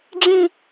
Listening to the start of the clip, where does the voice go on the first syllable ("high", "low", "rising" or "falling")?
falling